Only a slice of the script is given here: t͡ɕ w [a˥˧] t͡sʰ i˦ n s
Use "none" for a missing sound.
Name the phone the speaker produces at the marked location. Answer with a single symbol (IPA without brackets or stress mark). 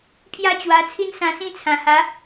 a˧